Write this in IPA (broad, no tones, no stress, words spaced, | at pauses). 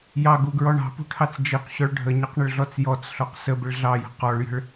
jɑɡuɡɹɔ ɳɑ̤pṳʈʰɑt͡s d͡ʒiqɕɔɭ ɖʱəɲʌqɳəɭɮɔt͡s jɔt͡sɬɔq səbɪɭ ɮɑjə̤ qɔɭjə̤ɭ